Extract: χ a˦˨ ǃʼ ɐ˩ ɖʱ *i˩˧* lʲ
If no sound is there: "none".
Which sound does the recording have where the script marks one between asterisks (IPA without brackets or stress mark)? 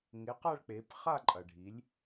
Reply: i˩˧